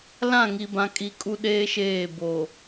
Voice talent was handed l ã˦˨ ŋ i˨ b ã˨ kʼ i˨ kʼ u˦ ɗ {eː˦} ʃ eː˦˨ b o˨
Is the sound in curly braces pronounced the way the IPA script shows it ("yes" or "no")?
yes